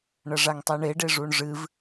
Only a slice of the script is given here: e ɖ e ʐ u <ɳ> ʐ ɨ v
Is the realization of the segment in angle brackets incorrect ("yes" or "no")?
no